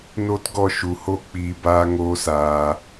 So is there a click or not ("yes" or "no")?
no